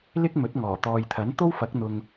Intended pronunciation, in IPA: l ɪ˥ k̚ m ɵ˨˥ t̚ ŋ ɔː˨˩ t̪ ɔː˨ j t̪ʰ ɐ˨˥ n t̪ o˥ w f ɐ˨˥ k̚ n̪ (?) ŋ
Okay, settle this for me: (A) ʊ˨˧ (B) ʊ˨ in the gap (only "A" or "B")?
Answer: B